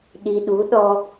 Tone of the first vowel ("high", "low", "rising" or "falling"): low